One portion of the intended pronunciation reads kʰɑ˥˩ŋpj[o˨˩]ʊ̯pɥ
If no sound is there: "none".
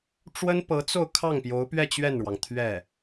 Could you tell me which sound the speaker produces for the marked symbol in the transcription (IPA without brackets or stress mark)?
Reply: o˧˥